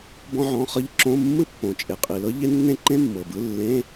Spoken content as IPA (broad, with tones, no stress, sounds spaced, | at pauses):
b ɔ̃˥ ʕ ɔ̃˧˥˧ χ ɤ˥ ʎ ǁ õ˧˥˧ mː ɯ˥ pː õ˨˩ t͡ʃʼ e˨˩ qʼ i˨˩ l ɤ˥ ʎ e˥ nː ẽ˥ ǃ ẽ˥ mː ɤ˨˩ b ɯ˧˥˧ lː ẽ˧˥˧